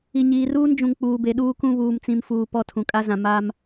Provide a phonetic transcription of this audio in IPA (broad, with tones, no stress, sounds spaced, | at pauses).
i˨ ɲ iː˨ r uː˦ n d͡ʒ ũ˨ ŋ k͡p uː˨ b e˨ ɗ uː˦ k ũ˦ β uː˨ m t͡s ĩ˨ m f uː˨ p ɔ˦˨ tʰ ũ˨ kʼ a˦ z ã˨ m a˦ m